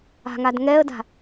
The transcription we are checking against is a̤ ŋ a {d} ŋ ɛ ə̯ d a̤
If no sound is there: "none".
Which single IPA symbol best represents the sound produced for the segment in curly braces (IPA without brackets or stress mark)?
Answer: d